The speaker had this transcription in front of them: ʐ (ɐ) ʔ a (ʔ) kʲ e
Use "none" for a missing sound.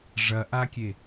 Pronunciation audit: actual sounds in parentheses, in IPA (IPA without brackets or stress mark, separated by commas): ɐ, none